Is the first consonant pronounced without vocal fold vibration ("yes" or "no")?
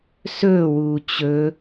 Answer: yes